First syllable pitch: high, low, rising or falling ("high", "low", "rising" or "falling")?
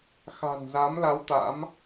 low